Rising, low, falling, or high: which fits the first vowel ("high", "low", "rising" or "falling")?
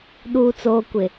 low